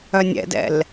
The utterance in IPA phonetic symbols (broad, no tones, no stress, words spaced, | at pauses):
œnʲɛ̰dɛ̰l